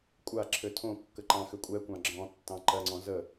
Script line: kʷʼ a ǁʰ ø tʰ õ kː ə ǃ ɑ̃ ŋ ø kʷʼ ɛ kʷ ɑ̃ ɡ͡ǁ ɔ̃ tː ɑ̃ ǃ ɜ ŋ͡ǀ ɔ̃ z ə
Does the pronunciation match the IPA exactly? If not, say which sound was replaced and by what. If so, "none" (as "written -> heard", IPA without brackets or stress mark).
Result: ŋ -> x